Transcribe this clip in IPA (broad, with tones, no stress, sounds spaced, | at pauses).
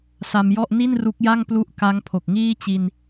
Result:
s a˧ m j ɔ˥˩ ʔ n i˥˩ n r u˦˥ k̚ j a˥˩ ŋ p l u˦˥ ʔ k a˦˥ ŋ pʰ o˨˩ k̚ ŋ iː˥˩ t͡ɕ i˧ n